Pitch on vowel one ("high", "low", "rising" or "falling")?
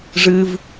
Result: low